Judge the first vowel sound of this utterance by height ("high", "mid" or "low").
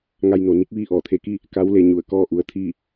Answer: low